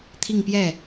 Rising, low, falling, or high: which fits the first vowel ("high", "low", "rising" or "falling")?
falling